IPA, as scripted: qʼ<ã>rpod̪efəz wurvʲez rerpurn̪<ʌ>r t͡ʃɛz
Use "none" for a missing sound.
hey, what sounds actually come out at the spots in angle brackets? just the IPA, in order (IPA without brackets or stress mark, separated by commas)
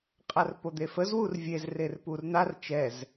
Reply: a, a